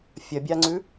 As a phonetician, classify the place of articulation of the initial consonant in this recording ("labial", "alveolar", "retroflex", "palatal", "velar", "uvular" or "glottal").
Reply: labial